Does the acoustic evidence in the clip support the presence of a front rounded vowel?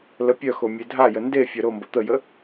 yes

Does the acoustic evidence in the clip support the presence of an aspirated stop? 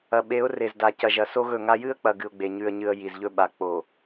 no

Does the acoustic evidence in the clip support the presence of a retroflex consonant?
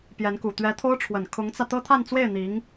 yes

